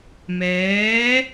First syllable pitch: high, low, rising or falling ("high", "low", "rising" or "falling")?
rising